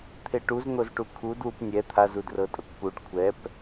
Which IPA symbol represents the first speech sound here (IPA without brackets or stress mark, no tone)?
t̪ʰ